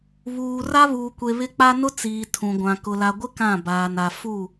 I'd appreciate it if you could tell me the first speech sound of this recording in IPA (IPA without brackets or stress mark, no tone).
β